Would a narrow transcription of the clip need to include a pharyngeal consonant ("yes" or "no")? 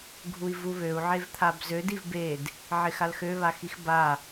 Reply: yes